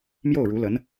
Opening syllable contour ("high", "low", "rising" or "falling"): falling